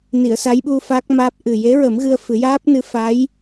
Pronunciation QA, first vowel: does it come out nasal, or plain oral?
oral